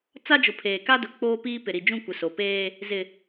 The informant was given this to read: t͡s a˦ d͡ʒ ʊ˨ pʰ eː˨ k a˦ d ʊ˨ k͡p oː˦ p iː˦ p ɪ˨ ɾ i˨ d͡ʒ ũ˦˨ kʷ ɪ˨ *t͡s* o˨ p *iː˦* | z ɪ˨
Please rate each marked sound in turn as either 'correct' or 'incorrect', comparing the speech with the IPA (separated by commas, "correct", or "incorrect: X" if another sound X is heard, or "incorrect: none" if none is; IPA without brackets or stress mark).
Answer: incorrect: s, incorrect: eː˦